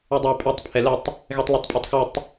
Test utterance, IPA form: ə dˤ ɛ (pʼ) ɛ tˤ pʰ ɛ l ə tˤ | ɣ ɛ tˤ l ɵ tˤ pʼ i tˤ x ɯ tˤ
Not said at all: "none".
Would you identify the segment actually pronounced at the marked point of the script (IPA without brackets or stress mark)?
pʼ